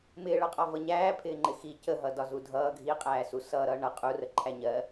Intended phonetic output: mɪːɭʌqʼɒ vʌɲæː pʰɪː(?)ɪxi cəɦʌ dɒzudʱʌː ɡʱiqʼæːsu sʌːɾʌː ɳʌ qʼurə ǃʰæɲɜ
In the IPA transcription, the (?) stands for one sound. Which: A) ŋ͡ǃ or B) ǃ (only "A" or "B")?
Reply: A